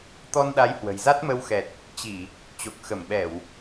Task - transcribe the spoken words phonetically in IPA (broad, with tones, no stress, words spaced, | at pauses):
t̪ɔ˧nɗa˨˦j hwə̤˨˩jza˦˥t̚mə˧wxɛ˨˩t̚ | t͡ɕi˧˩˨ | t͡ɕo˨˩k̚ xə˧˩mɓɛ˧˩˨w